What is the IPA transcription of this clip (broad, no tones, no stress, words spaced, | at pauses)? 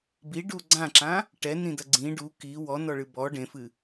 biɖu ɡ͡ǀãǁã | ʈɛnĩdɐ ɡ͡ǀĩ ɖu ki wɔnɔɭɨ bɔ ɖẽfɨ